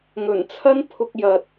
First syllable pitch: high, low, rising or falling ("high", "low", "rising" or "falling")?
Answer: low